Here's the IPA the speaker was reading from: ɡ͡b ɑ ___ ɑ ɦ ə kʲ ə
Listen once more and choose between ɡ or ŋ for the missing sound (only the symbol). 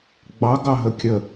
ɡ